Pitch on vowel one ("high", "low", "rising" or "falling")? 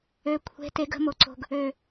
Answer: low